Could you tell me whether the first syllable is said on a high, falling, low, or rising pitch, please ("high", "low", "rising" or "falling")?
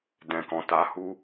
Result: low